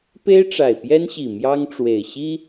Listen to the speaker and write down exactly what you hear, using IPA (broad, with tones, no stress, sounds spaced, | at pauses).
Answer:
p e˦ ɪ̯ ʈ͡ʂ a˨˩ ɪ̯ p j ɛ˦ n ɕ i˨˩ m j ɑ˦ ŋ ʈ͡ʂ w e˨˩ ɪ̯ ɕ i˦